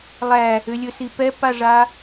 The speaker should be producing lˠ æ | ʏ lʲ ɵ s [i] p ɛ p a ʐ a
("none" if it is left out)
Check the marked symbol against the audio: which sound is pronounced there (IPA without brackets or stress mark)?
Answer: i